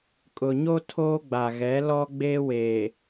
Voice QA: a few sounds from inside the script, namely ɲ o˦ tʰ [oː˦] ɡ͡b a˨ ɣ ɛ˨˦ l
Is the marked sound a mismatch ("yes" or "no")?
no